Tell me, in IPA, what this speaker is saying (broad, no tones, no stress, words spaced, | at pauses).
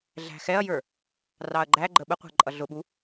ɮæ̤xɛɐ̯jə˞ | rɑɐ̯ɡ͡ǃæɡ͡ǃə ɓəqʷæ̤ ǃʼʌɮʊɓu